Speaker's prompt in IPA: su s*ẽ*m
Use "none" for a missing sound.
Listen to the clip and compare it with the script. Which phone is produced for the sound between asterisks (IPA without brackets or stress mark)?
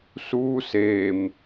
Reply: e